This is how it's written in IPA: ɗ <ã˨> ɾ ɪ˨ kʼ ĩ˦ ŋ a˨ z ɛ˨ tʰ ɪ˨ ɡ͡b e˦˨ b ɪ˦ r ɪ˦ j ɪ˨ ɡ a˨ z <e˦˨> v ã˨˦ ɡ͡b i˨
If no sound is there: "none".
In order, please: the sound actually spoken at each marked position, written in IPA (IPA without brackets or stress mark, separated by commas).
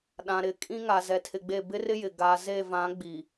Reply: ã˨, e˦˨